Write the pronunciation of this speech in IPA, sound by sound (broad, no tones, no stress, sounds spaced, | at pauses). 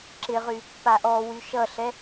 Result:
ǁ ɪ ʁ y | p a ʔ ɔ w y ʃ ʌ ɬ ɛ